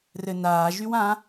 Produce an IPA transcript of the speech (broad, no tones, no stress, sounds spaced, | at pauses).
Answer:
r ɘ n aː ʒ y w ã